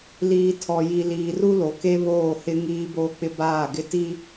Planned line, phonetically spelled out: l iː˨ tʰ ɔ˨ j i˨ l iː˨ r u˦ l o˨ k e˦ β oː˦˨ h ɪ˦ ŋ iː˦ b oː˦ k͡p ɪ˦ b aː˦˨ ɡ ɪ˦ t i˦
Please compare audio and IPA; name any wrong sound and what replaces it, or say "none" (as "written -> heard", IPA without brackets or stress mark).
none